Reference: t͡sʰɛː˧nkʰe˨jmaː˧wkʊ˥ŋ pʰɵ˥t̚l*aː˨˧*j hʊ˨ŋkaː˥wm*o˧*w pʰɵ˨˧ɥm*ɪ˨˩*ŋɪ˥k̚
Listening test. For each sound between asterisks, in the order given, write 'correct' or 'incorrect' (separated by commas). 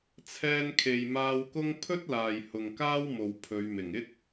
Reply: incorrect, incorrect, correct